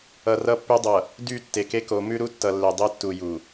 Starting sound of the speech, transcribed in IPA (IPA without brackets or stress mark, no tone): ʌ